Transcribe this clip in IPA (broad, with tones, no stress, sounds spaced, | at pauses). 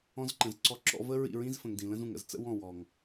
ɔ̃˧ z ǃ ə̃˨ z ǀ ɔ˧ ǁ ɔ̰˧ v ə˦ ɹ ḭ˦˨ ɹ ĩ˦ z f ə̃˨ ŋ d ĩ˨ l ə̃˦ z ũ˨ ŋ ə̰˧ z t͡s ə̰˦ w ɔ̃˦˨ w ɔ˨ ŋ